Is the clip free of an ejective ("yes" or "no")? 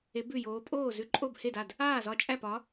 no